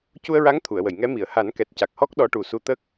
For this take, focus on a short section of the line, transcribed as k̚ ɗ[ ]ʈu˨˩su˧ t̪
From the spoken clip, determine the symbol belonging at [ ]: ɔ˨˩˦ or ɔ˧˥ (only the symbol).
ɔ˧˥